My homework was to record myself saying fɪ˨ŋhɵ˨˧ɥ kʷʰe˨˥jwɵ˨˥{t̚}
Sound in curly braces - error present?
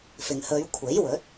no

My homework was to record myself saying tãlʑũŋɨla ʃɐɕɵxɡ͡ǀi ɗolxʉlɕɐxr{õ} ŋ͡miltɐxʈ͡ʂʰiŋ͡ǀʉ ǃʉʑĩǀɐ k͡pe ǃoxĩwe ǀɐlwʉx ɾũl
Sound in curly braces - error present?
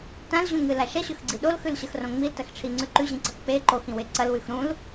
no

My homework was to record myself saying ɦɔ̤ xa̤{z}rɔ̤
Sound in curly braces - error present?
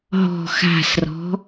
yes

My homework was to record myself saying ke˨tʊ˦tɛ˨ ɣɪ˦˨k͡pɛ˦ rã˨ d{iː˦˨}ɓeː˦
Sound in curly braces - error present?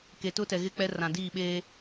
no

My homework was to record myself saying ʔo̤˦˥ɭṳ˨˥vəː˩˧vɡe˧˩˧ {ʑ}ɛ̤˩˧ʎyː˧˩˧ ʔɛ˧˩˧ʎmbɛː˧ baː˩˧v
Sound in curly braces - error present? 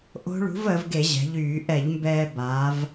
no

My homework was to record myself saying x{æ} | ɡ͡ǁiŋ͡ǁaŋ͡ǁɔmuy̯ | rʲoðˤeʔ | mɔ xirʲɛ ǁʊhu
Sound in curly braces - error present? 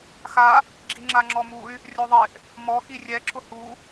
yes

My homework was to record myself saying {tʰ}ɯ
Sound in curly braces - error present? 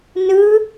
yes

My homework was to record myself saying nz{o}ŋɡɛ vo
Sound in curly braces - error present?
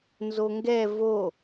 no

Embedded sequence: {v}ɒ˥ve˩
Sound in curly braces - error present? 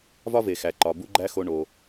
no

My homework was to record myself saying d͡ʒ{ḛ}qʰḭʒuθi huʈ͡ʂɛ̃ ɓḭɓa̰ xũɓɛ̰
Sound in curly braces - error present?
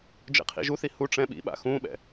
no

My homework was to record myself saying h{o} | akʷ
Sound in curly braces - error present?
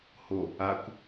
no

